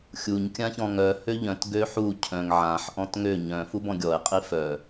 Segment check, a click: absent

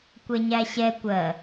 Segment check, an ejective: absent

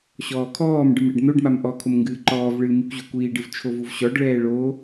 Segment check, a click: present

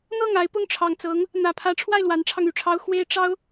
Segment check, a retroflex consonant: present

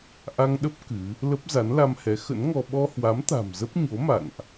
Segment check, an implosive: present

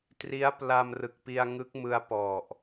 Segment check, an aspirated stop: absent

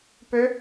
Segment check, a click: absent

